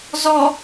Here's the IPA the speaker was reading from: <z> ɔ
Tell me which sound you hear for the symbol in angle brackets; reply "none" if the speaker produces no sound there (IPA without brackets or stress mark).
z